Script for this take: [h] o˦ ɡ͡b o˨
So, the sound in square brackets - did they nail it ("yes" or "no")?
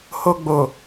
yes